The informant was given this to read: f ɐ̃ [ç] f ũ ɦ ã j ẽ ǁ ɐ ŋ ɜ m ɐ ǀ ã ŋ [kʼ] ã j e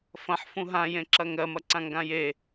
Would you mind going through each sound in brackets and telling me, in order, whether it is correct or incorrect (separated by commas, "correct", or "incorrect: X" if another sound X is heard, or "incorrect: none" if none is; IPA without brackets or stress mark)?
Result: incorrect: ħ, incorrect: ɡ